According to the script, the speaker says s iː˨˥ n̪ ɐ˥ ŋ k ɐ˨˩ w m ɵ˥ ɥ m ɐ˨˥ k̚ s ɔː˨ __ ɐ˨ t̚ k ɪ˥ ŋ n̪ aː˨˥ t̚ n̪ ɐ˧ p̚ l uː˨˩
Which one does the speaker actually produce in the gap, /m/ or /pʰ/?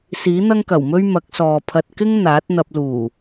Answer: pʰ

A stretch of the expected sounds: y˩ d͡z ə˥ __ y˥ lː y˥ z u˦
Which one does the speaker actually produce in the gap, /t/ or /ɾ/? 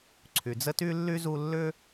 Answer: t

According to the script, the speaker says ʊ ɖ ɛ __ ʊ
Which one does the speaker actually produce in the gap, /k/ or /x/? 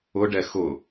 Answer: x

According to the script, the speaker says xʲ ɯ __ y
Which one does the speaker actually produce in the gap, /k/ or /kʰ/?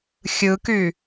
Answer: k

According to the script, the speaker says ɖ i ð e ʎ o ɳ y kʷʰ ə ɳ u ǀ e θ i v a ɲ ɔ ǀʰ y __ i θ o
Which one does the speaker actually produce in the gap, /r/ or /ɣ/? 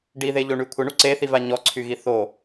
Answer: ɣ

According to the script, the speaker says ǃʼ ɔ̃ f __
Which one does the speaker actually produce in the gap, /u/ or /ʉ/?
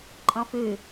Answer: ʉ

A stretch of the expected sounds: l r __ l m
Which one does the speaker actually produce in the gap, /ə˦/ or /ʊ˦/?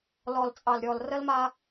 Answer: ə˦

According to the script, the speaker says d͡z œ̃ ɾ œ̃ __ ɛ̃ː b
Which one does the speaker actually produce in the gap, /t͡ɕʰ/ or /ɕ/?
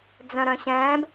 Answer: ɕ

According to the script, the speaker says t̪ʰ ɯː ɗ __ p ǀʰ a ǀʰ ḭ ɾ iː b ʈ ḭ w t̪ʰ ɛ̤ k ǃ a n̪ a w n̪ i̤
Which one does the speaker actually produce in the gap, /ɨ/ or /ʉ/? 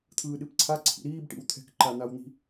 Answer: ɨ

